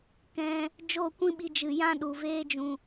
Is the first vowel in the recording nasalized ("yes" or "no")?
yes